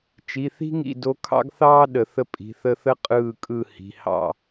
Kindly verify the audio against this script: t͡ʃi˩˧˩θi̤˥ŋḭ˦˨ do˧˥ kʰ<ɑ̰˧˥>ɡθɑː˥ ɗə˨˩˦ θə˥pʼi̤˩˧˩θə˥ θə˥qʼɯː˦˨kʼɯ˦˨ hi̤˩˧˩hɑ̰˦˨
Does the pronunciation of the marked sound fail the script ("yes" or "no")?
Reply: yes